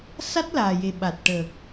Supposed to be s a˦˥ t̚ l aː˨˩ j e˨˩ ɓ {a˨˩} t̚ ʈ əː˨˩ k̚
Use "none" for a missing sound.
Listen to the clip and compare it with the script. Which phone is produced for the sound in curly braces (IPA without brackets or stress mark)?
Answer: a˨˩